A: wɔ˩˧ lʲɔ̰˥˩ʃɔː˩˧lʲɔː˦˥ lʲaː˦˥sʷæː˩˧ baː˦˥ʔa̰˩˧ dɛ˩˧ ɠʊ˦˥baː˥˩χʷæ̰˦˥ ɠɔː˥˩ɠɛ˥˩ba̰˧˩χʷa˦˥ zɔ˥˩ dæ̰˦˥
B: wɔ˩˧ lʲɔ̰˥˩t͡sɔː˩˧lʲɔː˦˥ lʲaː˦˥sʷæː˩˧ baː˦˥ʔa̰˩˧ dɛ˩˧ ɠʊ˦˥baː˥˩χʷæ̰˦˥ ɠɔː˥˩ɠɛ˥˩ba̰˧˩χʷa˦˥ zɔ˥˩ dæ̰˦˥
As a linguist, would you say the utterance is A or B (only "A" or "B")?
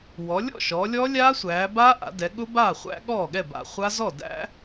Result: A